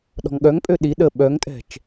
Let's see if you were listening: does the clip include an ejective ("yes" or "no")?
yes